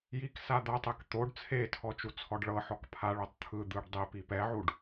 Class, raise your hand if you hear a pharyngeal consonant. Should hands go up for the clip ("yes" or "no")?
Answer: yes